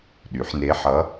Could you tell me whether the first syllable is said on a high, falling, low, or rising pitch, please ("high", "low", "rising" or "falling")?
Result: rising